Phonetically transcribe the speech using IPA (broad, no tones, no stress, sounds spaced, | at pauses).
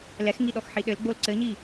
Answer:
l ɛ x ŋ i ɗ ɔ x ħ i ɗ ɘ l ɡ͡b o l ǀ ɘ ɲ i